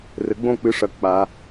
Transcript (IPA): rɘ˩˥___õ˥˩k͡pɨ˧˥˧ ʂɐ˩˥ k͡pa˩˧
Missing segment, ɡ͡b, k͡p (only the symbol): ɡ͡b